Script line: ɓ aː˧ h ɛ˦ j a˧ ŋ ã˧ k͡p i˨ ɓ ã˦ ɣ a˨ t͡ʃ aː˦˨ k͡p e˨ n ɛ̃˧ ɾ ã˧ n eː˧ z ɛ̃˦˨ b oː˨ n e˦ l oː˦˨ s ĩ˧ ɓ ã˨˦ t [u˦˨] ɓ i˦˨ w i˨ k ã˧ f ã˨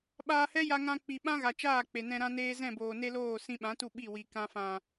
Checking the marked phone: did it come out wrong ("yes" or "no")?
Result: no